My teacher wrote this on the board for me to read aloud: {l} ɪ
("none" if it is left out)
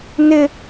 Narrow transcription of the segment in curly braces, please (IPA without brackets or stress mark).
n